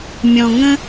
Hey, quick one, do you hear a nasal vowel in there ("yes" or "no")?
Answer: yes